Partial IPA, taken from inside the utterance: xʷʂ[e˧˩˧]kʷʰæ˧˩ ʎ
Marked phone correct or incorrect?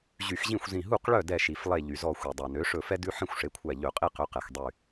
incorrect